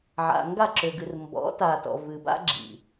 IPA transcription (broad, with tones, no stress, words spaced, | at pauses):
ʕa̰˨ŋɡa˦˨ǁʏ˨ɡɨ˨r mbɔ̰˨˦ta˨tɔ̰˨ vɨ˨ba̰˦ ɡ͡ǁḭ˨